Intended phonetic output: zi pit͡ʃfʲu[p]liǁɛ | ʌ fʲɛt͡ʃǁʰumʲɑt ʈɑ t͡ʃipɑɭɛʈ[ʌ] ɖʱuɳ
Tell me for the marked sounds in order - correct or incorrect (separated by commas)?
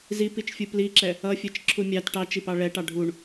correct, incorrect